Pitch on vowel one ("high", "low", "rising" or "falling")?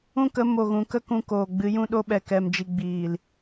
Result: high